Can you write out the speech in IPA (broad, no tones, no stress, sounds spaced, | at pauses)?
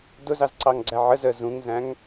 d ʊ z ɑ z ǀ ɑ ŋ ɡ͡ǀ æ ʕ ə z ə z ũ ŋ z æ̃ ŋ